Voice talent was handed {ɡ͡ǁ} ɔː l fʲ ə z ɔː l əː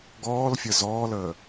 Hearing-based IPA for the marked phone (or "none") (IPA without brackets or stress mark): ɡ